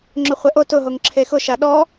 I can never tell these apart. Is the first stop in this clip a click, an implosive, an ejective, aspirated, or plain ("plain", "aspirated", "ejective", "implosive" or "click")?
click